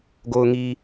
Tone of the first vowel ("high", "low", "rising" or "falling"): low